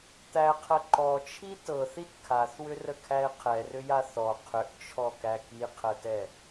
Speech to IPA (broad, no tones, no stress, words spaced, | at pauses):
t̪æqʰə ǃɔt͡ʃʰi tɤθit kʰaθwʏrəkʰæe̯ qʰɛrʏja θɔ qʰʏʔt͡ʃʰɔkæ kiqʰətɛ